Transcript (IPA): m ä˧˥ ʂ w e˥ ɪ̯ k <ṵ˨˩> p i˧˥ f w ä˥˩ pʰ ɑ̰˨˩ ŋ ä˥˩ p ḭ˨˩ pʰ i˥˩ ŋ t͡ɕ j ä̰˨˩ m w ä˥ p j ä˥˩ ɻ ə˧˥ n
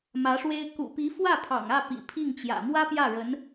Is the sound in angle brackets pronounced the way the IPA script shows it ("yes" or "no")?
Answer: yes